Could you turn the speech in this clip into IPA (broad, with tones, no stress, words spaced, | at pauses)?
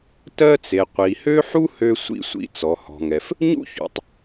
tɜ˧t͡se˩ qʷi˩hø˥ ħu˥hø˧ sʷḭ˧sʷḭ˧ t͡sɔ˩hɔ̤˩ŋɛ˩f | ɲṵ˥çṵ˩tˤ